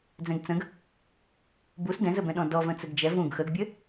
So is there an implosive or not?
yes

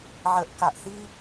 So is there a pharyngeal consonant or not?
yes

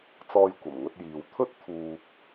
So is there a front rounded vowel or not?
no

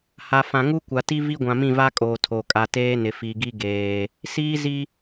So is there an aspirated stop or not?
yes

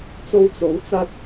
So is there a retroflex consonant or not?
no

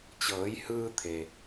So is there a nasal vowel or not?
no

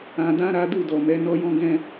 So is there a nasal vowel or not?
yes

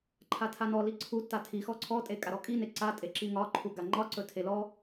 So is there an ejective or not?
yes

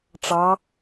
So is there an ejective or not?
no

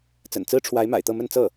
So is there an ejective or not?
no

